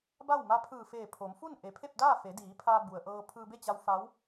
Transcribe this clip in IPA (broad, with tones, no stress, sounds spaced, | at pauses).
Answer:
b a˥˨ w m a˧˥ pʰ ɯː˧˩ f eː˧˩ pʰ o˩˧ m f u˥˨ n ʔ e˩ pʰ e˥˨ p̚ d aː˥˨ f e˩˧ d iː˩˧ pʰ aː˧ b u˩ ə̯ ʔ ɤː˧ pʰ ɯː˧ b e˥˨ t͡ɕ a˧ w f a˧˥ w